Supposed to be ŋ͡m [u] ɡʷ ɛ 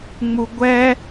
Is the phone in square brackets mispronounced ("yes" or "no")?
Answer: no